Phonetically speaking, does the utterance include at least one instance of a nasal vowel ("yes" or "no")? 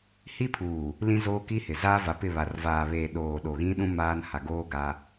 yes